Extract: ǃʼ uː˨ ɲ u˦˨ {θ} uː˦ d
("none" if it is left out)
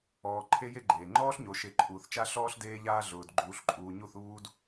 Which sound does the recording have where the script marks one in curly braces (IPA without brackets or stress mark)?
θ